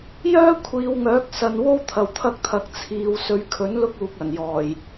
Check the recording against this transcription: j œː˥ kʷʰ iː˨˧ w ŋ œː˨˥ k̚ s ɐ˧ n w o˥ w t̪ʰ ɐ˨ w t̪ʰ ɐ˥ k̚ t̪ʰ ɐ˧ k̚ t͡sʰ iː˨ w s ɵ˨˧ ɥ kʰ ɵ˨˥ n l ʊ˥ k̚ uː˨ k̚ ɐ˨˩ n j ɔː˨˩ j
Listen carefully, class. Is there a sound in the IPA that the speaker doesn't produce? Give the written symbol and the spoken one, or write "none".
none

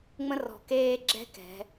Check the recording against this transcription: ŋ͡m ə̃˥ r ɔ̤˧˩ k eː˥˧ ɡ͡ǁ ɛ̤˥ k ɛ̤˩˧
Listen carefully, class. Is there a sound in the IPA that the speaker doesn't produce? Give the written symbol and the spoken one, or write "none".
none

